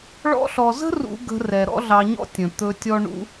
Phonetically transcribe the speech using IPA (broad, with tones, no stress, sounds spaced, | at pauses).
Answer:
ɭ ɔ̰˧ ɬ ɔ˨ z ə̤˦ r ṵ˦ ɡ ə̤˧ r ɛ˨ ɾ ɔ̰˦ ɮ ɑ˧ ɲ ɔ̰˦ tʲ ə̃˨ t̪ ɵ˧ tʲ ɔ˦ ɳ ṵ˦